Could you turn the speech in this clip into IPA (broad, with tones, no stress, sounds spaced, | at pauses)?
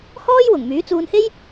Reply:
h ɔː˥ j w ʊ˨˩ ŋ m yː˨˥ t͡s uː˧ n h e˥ j